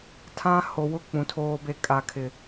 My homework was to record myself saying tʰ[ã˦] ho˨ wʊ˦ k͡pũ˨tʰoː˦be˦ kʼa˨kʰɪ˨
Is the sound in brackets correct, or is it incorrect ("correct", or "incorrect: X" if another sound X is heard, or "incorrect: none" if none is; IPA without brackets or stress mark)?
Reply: correct